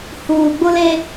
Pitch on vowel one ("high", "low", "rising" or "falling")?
low